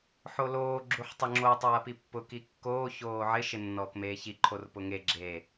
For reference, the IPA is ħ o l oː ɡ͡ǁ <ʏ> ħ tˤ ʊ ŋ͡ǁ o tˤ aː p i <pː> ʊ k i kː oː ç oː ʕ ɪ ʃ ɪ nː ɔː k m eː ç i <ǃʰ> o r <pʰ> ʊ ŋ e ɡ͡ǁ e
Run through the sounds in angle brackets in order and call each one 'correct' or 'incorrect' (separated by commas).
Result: incorrect, correct, correct, incorrect